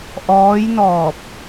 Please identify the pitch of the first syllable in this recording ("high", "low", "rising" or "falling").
rising